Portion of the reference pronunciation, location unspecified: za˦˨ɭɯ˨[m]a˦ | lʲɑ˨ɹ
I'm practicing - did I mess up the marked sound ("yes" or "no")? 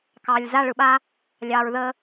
yes